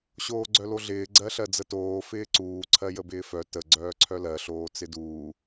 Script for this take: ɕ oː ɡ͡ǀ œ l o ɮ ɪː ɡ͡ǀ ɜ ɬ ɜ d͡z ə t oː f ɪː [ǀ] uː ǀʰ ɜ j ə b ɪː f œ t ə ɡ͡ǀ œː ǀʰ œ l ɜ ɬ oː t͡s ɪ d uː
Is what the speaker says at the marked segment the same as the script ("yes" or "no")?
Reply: yes